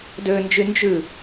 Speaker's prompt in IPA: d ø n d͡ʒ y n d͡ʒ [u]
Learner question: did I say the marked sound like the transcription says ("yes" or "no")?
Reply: no